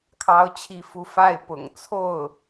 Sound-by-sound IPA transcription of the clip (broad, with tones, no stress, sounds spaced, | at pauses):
kʰ ɑ˥ ʊ̯ t͡ɕʰ i˥˧ f u˥˧ f a˥˩ ɪ̯ p ʊ̰˨˩ ŋ t͡sʰ o˥˩ ʊ̯